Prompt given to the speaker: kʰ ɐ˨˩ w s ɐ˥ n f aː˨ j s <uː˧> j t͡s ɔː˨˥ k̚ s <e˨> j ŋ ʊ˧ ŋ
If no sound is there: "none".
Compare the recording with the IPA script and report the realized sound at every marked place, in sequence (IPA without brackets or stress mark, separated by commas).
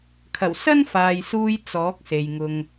uː˧, e˨